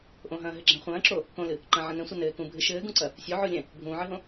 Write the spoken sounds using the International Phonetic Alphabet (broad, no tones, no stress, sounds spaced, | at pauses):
ʔ õ ɦ ɐ̃ː ɦ ɘ ɡ͡ǁ ɛ̃ χʷ ɐ̃ː ǁ o | k õ l ɨ | ǃ ɐ̃ ʕ ɐ̃ n ɛ̃ sʷ ɘ n ɘː k ũ bʱ ɨ ʃ ɘː ɡ ũ ǀ ɐ | sʲ o ʕ o lʲ ɛ̃ | bʱ ũː ʕ ɨ ɦ õ